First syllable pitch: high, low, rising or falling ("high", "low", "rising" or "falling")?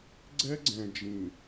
high